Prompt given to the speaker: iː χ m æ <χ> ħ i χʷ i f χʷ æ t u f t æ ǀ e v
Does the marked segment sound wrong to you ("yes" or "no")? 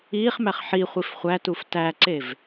no